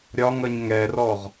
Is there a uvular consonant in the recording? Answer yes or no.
yes